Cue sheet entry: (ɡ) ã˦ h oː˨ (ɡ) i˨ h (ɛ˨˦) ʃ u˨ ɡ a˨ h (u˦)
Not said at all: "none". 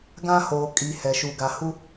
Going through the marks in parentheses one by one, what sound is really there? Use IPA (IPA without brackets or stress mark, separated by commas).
ɡ, kʼ, ɛ˨, u˦